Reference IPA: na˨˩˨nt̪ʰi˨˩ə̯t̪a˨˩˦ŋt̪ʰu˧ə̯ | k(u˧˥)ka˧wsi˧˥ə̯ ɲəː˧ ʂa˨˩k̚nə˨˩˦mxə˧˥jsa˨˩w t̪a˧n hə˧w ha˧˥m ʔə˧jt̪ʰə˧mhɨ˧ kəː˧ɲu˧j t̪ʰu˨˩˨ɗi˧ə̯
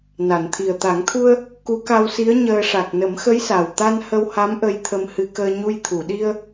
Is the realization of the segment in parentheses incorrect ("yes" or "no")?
no